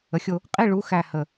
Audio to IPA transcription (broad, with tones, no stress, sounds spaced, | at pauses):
ə˨˦ xʲ o˥˧ | qʼ i˧˥˧ ɭ u˨˦ x æ˥˧ h ə˧˩